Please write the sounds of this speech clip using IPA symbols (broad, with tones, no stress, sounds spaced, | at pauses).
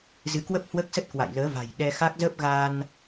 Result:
z ɨ˨˦ k w ə˦˥ p̚ h w əː˦˥ k̚ s ə˦˥ t̚ k w a̰˧˨ j l əː˨˦ v a̤˨˩ j ɗ ɛ˧ x a˦˥ k̚ z əː˦˥ p̚ ɣ aː˧ n